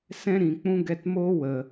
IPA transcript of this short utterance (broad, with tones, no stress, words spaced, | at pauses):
sɛ̃˦ɾĩ˨k͡pũ˦ ɡɛ˧tmoː˦ wə˨